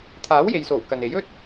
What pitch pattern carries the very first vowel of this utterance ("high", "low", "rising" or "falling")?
rising